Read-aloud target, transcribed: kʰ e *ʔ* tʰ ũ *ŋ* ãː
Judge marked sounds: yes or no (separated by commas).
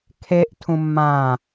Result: yes, no